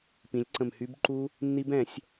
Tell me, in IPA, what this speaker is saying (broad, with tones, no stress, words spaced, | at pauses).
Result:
pĩ˩˧lʲǀə̃˨˩m hy˦˥b ǃu˦˥ | nːi˦˥bɛ̃˧˩˧sʲ